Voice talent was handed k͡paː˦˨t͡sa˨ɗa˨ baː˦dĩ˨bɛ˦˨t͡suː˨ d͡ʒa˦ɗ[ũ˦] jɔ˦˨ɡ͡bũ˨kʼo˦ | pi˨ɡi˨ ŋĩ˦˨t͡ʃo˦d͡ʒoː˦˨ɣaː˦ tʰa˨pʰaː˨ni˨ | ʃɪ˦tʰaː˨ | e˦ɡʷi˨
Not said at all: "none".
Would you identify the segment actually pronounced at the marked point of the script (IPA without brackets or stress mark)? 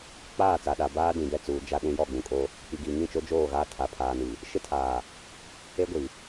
ũ˦